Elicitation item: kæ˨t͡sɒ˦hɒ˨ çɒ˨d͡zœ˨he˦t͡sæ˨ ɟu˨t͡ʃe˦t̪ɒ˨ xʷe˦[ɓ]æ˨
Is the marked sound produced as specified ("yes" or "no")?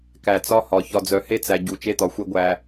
no